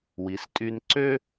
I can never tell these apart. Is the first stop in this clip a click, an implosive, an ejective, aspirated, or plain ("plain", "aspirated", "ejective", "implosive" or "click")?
ejective